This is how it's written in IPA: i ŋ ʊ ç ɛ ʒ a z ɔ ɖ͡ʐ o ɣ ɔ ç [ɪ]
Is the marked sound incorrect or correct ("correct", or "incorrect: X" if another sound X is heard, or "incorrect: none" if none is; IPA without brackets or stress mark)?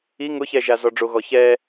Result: incorrect: ɛ